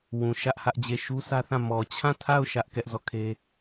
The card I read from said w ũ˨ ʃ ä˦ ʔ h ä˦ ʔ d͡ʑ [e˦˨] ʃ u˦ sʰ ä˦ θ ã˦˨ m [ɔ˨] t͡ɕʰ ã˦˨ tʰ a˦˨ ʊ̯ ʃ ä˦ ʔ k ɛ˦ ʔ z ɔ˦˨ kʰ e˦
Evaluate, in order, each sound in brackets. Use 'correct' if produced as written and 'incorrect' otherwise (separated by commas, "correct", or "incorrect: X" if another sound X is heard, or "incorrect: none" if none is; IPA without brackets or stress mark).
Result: correct, correct